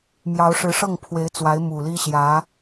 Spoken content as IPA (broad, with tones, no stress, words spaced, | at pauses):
mjɑ˧˥ʊ̯ ʂɻ̩˧˥ʂɤ˥˩ŋpʰwe˧˥ɪ̯t͡swa˧˥ɪ̯ mu˨˩li˥ɕjä˧˥